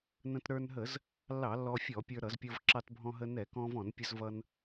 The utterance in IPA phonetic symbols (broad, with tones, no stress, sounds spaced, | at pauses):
n ə̃˧ t ɾ ə˞˧ n ɦ ə˧˩˧ z | lː ɑ˧˩˧ lː ɔ˧ fʲ ɔ˧˩˧ pʲ ə˞˧ ɾ ʌ˧˩˧ z pʲ ʌ˧ v ǁ ɑ˧ t bʱ ɔ̃˧ ɦ ə˧ n ɛ˧˩˧ k ɔ̃˧ v ɔ̃˧˩˧ n pʲ ə˧ z v ʌ˧ n